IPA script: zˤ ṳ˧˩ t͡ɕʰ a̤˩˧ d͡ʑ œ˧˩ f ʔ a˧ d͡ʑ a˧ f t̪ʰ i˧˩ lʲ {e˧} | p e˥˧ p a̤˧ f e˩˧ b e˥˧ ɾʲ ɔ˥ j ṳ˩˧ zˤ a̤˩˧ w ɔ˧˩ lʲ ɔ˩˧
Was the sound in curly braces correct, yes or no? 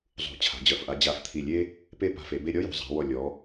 no